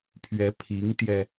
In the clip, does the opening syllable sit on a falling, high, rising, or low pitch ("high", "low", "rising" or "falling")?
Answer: rising